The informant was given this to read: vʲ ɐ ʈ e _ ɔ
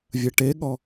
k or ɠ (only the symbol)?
ɠ